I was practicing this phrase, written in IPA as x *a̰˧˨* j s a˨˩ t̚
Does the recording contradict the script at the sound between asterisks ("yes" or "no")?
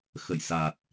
yes